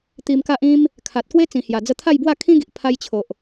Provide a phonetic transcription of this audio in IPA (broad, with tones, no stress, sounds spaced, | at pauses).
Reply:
t̪ i˧ m k a˦ ʔ ĩ˧ m | kʰ a˨ t̚ k w e˦ t͡s ĩ˨˩ h j a˨˩ d͡z ə˧ t̪ʰ a˥˧ j b w a˥˧ kʰ ĩ˦ ɡ i˨ ʔ pʰ a˧ j t͡ɕʰ o˨ ʔ